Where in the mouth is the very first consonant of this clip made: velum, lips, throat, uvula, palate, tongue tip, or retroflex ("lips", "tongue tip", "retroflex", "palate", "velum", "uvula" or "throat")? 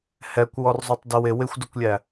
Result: throat